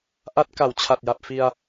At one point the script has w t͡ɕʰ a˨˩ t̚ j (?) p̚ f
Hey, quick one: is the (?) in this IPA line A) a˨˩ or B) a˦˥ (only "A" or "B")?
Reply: A